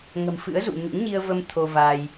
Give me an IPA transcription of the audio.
ŋ ə̤˨˩ m f ɨ̰˧˥ ə̯ z ṵ˧˨ ɲ ṵ˧˥ ŋ ɲ i˧ ə̯ v ə˧ m t̪ʰ o˧ v aː˧ j

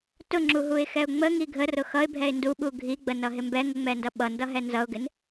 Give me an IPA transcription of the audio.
t ʊ ŋ͡ǁ u ɦ u ɪ̯ x ɛ ʊ̯ ŋ͡m ə ŋ i ɡʱ ə r ʊ x ʌ ɪ̯ bʱ ɛ ɪ̯ n d u ɓ u ɡʱ i ɡ͡b ə n ʌ ɦ ɪ m b ɛ ŋ ə ŋ͡m ɛ n d ʌ ɓ ʌ n d ʌ ɦ ɛ n z ʌ ʊ̯ ɡ ɪ n

